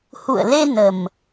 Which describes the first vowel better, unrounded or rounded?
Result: rounded